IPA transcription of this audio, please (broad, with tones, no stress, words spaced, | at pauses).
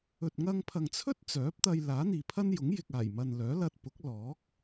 ɵ˨t̚ŋɐ˧ŋpʰɐ˨ŋt͡sʰɵ˥t̚ t͡sœː˨˥p̚t̪ɐ˧j laː˨˥n̪iː˨pʰɐ˥njʊ˨˥ŋ jɪ˨k̚aː˨˩jmɐ˨n lœː˨˥lɐ˧t̚pʊ˨˥k̚ lɔː˨˥k̚